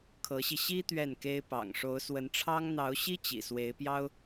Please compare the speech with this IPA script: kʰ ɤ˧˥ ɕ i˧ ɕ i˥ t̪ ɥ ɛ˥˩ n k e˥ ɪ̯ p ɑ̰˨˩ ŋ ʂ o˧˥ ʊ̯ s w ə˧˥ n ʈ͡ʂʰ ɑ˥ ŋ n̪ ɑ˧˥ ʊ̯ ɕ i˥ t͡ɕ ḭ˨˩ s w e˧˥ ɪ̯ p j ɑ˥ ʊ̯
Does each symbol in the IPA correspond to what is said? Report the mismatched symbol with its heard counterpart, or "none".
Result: none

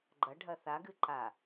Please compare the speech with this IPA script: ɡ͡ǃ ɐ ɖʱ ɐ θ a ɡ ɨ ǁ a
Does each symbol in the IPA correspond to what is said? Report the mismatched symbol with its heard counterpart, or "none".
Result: ǁ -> ǃ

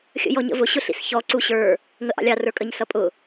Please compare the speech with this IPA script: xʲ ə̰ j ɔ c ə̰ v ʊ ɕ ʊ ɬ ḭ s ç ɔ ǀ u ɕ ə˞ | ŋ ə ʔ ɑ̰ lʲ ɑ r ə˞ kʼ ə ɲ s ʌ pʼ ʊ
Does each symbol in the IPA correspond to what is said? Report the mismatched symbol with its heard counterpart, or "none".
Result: c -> ɲ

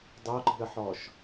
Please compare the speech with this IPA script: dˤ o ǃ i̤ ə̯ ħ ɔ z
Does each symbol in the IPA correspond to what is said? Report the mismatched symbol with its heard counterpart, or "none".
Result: z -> ʃ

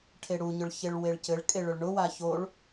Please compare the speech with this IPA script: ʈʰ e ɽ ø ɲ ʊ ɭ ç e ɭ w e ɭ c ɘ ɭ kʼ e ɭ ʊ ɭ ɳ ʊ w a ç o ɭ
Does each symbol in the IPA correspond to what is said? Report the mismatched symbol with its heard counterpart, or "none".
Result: ø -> u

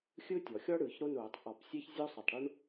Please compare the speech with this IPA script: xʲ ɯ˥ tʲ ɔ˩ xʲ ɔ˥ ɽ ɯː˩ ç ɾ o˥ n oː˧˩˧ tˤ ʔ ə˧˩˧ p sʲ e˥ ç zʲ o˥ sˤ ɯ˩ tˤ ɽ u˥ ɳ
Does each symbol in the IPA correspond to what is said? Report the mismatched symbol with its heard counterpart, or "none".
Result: ə˧˩˧ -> ɔ˧˩˧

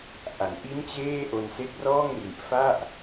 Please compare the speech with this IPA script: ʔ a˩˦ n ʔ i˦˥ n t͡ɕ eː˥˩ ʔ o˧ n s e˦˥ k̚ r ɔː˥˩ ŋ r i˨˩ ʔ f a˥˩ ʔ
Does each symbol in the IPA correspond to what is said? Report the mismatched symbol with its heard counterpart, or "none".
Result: none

